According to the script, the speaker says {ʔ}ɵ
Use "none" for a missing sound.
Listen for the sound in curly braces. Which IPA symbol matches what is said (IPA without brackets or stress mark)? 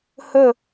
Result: h